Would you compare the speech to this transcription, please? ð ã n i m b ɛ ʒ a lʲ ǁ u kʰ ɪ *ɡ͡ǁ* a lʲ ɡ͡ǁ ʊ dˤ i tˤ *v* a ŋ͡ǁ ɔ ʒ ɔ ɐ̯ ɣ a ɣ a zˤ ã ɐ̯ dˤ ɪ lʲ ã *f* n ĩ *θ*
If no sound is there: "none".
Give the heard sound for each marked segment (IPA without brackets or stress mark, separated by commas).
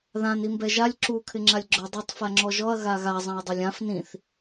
ŋ͡ǁ, f, f, θ